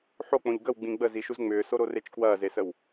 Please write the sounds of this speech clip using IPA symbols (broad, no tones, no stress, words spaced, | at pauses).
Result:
ħok͡põʎ ɡəwɡ͡bĩ ɡ͡bəziʃuz ŋ͡mʏːsoɾoret͡ʃ kwɐːzesəw